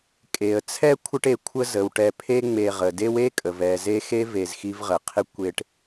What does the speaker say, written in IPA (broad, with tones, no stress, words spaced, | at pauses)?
kʼe˩ə̯ t͡sʰɛ˥ kʷʰə˦ʈ e˨kʷʰə˦ zə˩w ʈɛ˨pʰe˦ ŋ͡me˨ʁə˩ de˦we˥kʼə˩v ɛ˨ ze˥ xe˥ve˨z xi˦vʁə˩qʰɪ˥ kʷe˦ʈ